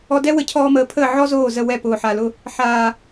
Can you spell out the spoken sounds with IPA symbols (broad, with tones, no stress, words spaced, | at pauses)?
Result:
ɔ˧dɛ˦ wə˨˦cʰɔː˧məː˨pʰəː˦˨ ʕɔ˦zoː˦˨zə˦˨ wɛ˦˨pʊː˨ħa˨lʊ˧ | ħaː˨